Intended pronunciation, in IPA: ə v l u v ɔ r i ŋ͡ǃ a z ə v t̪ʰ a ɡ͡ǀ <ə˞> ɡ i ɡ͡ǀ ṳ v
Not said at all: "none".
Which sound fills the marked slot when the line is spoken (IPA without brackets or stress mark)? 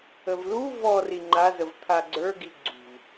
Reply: ə˞